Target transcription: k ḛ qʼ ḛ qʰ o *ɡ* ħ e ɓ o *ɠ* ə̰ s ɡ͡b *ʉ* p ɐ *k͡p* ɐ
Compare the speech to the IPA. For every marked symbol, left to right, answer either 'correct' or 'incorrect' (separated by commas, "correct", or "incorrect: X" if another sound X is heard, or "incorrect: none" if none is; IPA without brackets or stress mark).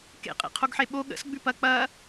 correct, correct, correct, correct